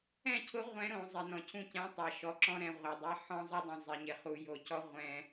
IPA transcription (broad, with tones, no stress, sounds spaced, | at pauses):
ɛ̃˦˨ cʰ ʊ˦ ʁʷ ɛ̃˦ ɾ õ˨ zˤ e˨ n ɔ̃˨ cʰ ũ˦˨ c ɛ̃˦ tˤ a˨ ʃ ɔ˨ ǁ ɔ̃˦ ɾ ɛ̃˨ ʁʷ a˨ dˤ ɛ˦ ħ ɔ̃˦ zˤ ʊ˦ dˤ ɛ̃˨ zˤ ɪ˨ ɲ ɪ˨ χ u˨ j o˨ c ɔ˦ ʁʷ ɛ̃˦